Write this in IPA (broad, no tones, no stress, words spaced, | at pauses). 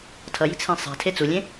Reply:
tʰʌji̤t͡sʰĩ sˤɛ̤tʰe t͡sulʲẽ